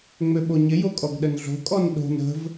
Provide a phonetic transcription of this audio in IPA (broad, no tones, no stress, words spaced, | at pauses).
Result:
ŋ͡møɓoɲɪ jokʼɔɡɗənɮo̤ kʼɔnɗo̤n ə̤v